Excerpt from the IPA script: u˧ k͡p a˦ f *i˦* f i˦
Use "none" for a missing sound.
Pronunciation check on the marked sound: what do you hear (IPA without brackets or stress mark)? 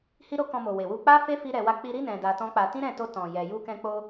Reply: e˦